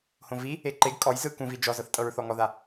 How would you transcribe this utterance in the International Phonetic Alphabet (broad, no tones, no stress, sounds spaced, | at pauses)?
h õ v i | e ǃ e ɡ kʼ ɔ j z ɯ k ũ v i d͡ʒ ɔ z ɤ θ tʼ ɤ ɹ θ ɔ ŋ ɔ ð a